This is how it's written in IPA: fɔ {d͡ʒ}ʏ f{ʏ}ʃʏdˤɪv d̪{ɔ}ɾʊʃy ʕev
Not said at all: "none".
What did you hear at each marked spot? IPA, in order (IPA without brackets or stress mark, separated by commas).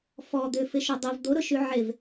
d̪, ɪ, o